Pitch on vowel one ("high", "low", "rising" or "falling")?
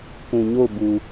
low